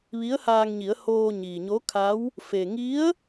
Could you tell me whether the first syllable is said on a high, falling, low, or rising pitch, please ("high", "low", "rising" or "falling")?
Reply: rising